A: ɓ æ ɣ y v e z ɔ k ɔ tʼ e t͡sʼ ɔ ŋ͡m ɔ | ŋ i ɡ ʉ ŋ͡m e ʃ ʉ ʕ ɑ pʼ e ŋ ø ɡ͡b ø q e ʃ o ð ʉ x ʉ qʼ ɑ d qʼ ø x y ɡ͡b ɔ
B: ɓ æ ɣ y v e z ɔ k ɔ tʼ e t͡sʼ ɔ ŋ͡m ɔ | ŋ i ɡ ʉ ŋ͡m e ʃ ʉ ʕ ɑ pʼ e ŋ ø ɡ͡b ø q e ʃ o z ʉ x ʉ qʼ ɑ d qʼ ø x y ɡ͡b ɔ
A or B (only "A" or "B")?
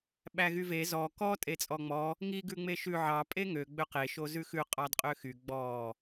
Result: B